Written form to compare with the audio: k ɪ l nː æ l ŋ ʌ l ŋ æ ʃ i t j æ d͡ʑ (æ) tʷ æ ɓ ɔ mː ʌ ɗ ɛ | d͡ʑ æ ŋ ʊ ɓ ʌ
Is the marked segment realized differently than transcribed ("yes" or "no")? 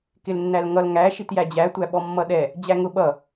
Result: no